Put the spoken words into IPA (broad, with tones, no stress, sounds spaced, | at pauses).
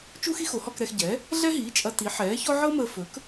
t͡ʃ u˥ x i˥ x o˩˥ h ɔ˧ k ɾ ɛ˧ x ɟ ɛ˩˥ | ɮ ɛ˥ ɦ iː˩˥ t͡ʃʼ ɐ˧ t i˩˥ ħ ɛː˩˥ ç ɔ˥ ʕ ɤ˥ m əː˧ f ɵ˩˥ k